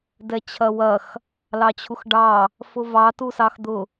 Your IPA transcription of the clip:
dɛt͡ɕʰɐwɐx | lɑt͡ɕʰuxɖɑ | fʊvɑ tusɑxd̪ʊ

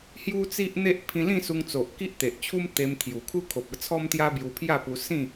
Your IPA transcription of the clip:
hju˦t͡si˦ʔn̪e˦ʔ pʰĩ˧lĩ˥˧su˧ŋ t͡so˨ʔki˦ʔt̪e˨ʔt͡ɕʰu˦m t̪e˧m t̪ʰju˨˩ kʰu˦kʰo˨p̚ə˨˩t͡sʰɔ˦m t̪ja˦bju˧ pʰja˥˧pu˧sĩ˥˧

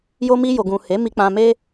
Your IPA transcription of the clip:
jo˧mi˧jo˨ɡũ˨ he˨˦mi˧k͡pã˧me˦

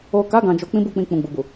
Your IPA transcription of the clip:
o˨ka˨˦ ɡã˧d͡ʒo˧ k͡pĩ˦bu˦˨k͡pĩ˧ k͡pũ˨ɡ͡bu˨bu˨

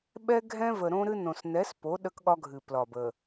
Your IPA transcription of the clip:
ɓɛ˦ɡʱɛ̃˦ və˨ɾõ˦ɾɨ˦nõ˨s nɛ˨˦spo˨˦ ɗə˦kɠɒ˦ɡʱɨ˨ plɒ˨b ə˨

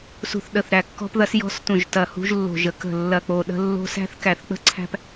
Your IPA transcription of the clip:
sṳ˧˩θɗə˧˩θɾæ˧˩ kːɔ̤˦pðɐ˦s jɔ̤˦stũ˧˩ʒ tɐ˧˩hṳ˦ʒlːo̤˧˩ʒə˦ kə̤˧˩lːɐ˧˩k͡po˧˩ ɗə̤˦ lːo̤˦ sæ̤˦θkæ˧˩θk͡pə̤˦ǀʰæ̤˦p

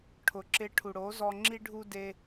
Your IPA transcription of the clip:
ʈʰʊ˨ǁɪ˧ʈʰu˨ ɽo˨˦zɔ˧ ŋ͡ǁi˦ɖʱu˦ de˦

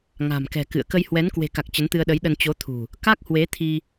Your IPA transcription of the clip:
ŋa̤˨˩mkɛ̤˨˩kɨ̰˧˨ə̯ kə˧jhwɛ˨˦n kwe̤˨˩ka˨˩k̚ t͡ɕə˨˦nt̪ɨ˧ə̯ɗə˨˦jɗə˧n t͡ɕo˨˦t̪ʰṳ˨˩ | ka˦˥k̚hwe˨˦t̪ʰi˧

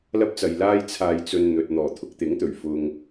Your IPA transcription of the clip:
lɐ˥p̚t͡sɐ˨jlaː˥j t͡sʰaː˧jt͡sɵ˧n n̪ɵ˨t̚ n̪ɔː˨˩ t̪ʰʊ˧k̚t̪ɪ˨˥ŋt̪ɵ˨˩ɥ fʊ˧ŋ

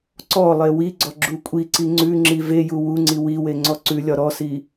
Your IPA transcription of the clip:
ǀɔlˠe wiɡ͡ǀɔ ɡ͡ǁukʷʼiǀi ŋ͡ǀʉŋ͡ǁi veju wuŋ͡ǀi wiwe ŋ͡ǀɔǀʉlʲɒ ɾɔsi

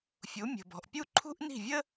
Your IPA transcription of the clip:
fʲu˨˥mʲə̤˨bɔ̤˨ʔpʲu˥ ǃʰṳ˥ʔni̤˥˩vʲə˥

